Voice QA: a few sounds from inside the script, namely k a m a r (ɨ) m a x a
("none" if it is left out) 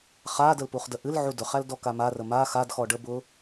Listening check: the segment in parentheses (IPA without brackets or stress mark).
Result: ə